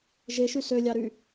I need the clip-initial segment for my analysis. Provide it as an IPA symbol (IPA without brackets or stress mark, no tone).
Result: ʒ